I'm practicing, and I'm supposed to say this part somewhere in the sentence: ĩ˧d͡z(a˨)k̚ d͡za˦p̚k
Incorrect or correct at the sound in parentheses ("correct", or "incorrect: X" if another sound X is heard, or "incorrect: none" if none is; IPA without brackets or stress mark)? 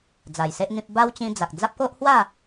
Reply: correct